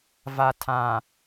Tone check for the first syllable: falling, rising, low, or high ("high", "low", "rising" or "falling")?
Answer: low